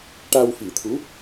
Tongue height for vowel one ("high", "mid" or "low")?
low